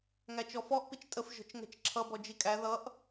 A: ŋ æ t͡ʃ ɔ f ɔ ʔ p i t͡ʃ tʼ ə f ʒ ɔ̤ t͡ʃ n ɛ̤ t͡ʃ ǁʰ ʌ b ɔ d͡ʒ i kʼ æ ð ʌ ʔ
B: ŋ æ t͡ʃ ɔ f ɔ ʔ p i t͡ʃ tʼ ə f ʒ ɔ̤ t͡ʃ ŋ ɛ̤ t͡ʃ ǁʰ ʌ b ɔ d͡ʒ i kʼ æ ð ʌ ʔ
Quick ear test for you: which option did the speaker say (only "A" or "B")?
B